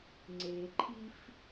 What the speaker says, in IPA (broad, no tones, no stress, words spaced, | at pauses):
ŋ͡ǀeǃʰif